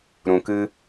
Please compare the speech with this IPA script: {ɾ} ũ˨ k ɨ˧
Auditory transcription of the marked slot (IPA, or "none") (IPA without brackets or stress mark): ɾ